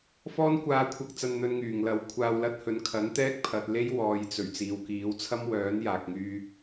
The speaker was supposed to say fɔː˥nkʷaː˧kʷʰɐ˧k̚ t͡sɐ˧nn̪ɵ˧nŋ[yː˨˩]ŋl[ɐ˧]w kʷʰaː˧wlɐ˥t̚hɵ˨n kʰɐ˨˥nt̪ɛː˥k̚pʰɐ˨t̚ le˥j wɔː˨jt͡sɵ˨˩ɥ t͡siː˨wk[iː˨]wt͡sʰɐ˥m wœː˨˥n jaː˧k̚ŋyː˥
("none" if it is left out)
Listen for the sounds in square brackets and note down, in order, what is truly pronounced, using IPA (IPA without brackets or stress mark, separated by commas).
yː˨˩, ɐ˨˥, iː˨˥